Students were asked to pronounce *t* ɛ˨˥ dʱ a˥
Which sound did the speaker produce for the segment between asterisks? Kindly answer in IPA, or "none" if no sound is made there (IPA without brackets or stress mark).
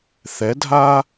θ